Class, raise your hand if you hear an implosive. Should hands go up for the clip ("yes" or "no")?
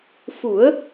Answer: no